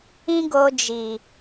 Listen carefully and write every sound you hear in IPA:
ĩ˦ ɡ o˧ d͡ʒ i˨

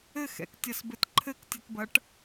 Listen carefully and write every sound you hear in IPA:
ɘ x ɛ̰ k tʲ ɐ s b ɘ t ǃʰ ɘ k tʲ ɨ t b ɐ ʈ

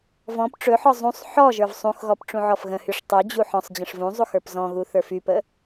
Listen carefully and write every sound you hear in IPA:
v ɔ̃ p ʈ͡ʂ ɵ ħ ɔ zˤ ũ sˤ ħ ɔ ʒ ə˞ v sˤ ũ x ɣ ɔ p ʈ͡ʂ ũ ʕ ɔ f ɣ ə̃ h y ʂ tˤ y d͡ʑ u ħ ɔ̃ sˤ d͡ʑ ə̃ ʂ v ũ zˤ u x ə˞ p z ɔ̃ ɣ u θ ə˞ f y p ə

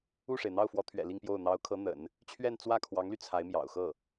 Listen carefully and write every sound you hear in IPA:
u˥˩ ʂ e˩ ɪ̯ n̪ ɑ˥˩ ʊ̯ f w ɔ˧˥ t̪ʰ ɥ ɛ̰˨˩ l i˥˧ ŋ p j o˥˩ ʊ̯ n̪ ɑ˧˥ ʊ̯ kʰ ɤ˧˥ n̪ ə̰˨˩˦ n | t͡ɕʰ ɥ ɛ˥˧ n t͡s w ä˥˩ kʰ w ɑ˧˥ ŋ l y˧ t͡sʰ a˧˥ ɪ̯ m j ɑ̰˨˩ ʊ̯ x ɤ˥˩

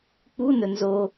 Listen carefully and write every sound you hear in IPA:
k͡p u n ɵ n z o

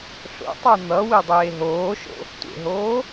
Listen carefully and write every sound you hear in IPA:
ɬ o̰ tˤ a n̪ ʌ w i dˤ eː ɦ oː ʃ o̰ | tʷ ḛ ɦ oː

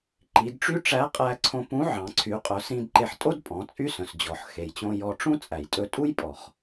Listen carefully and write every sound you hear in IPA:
ǃ i˩˧ d ʈ͡ʂ y˥ ʈ͡ʂ æ˧˥ qʼ æ˧ ǀʰ õ˧ p ũ˧˥ ʕ ɑ̃˩˧ ǀʰ y˩˧ qʼ œ˩˧ s ĩ˧ d ǃ e˧ ħ tʼ o˥ d pʼ ɔ̃˩˧ t͡sʼ y˥ s œ̃˩ s d͡ʑ ɔ˩ ħ x e˩ j t͡ɕ õ˧ j ɔ˧ ʈ͡ʂ ũ˥ t͡sʼ æ˩ j tʼ ɵ˧ tʼ u˥ j pʼ ɔ˩ χ

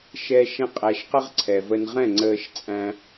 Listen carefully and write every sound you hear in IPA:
ʃ ɛː˧ ʃ ɛ̃˧ qʼ æ˨ ʃ q ə˧ ʁ ǀʰ ɛ˨ v ə˧ n ʁ ɛ̃˦˨ ŋ͡ǀ əː˧ ʃ t͡sʼ æ̃˧

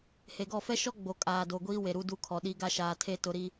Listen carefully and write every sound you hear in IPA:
h e˨ ɡ ɔ˦˨ f ɛ˦ ʃ ɔ˦ ɡ͡b o˨ kʼ aː˨ d o˨ ɡʷ iː˦ w e˨ ɾ u˦ d u˦ kʰ ɔ˨ ɗ i˦ ɡ a˦ ʃ aː˨ tʰ e˦˨ t ʊ˨ ɾ i˨

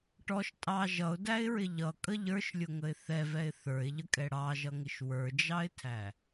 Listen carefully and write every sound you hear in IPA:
ʈ ɔ ʃ tʼ ɑ ʒ ʌ ʊ̯ d æ ɪ̯ ɹ ɪ ʎ ʌ kʼ ə ʎ ə˞ ʃ lʲ ʊ ŋ ə ɪ̯ θ ɛ v ɛ ɪ̯ θ ə˞ ɪ̯ ʎ ə kʼ ɛ ɽ ɑ ʒ ʌ ŋ ɪ ʃ w ə˞ d͡ʒ ɑ ɪ̯ tʰ æ

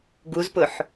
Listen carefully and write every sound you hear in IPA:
ɡ u z p ʊ ħ

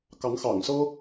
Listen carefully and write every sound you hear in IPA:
k ɑ˨˦ ŋ x ɑ̰˨˩ ŋ s ɤ˦

